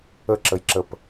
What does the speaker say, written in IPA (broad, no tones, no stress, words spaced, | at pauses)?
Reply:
əǁəjǁəp